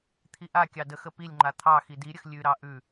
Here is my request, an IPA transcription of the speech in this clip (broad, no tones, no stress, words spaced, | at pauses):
t̪ʰiʔakʲɑ dəxə pilʲŋ͡ǃa t̪ʰɑ xidiɾʲəx lʲʉɾɑ ʔʉ